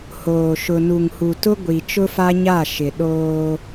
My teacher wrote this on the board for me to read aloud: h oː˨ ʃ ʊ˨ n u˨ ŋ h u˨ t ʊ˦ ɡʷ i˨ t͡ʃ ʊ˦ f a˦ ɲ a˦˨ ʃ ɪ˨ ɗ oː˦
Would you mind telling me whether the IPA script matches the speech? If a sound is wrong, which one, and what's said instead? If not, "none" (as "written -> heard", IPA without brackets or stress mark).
none